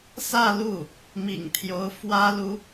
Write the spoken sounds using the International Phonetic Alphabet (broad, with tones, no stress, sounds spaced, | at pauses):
s ä˥˧ l u˥˩ | m ḭ˨˩ ŋ t̪ʰ j o˧˥ ʊ̯ f w ä˥ l u˧˥